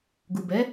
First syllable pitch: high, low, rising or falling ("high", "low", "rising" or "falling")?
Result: low